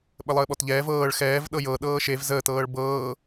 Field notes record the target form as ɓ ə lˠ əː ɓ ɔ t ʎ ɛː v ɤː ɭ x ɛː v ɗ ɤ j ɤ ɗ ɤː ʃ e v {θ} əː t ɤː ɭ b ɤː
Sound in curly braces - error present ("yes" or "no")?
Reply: yes